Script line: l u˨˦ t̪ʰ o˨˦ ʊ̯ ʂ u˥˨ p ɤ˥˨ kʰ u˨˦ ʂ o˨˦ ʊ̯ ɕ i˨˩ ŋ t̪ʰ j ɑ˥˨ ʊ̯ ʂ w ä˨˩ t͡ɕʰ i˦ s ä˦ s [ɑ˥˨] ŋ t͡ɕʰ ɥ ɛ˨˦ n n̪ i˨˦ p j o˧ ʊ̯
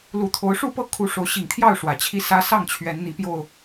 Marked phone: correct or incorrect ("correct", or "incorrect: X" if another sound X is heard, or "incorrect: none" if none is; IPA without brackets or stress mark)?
correct